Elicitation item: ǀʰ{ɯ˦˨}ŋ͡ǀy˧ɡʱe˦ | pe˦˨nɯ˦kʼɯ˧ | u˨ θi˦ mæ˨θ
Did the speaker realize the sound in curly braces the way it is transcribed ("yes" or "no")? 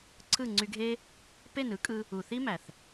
yes